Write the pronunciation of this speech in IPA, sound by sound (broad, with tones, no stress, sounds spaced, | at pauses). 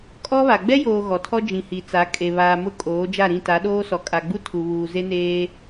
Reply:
kʼ ɔ˦ β a˨ ɡ͡b ɛ˦ j oː˨ ɣ ɔ˨ tʰ ɔ˦ d͡ʒ ĩ˨ h i˨ t͡s a˨˦ kʼ e˨ β aː˨ m ʊ˦ kʼ oː˨˦ d͡ʒ a˦˨ ɾ ĩ˦˨ t a˨˦ ɗ oː˦ s ɔ˨ kʼ a˨ ɡ͡b u˦ tʰ u˨ β uː˨ z e˦ n eː˦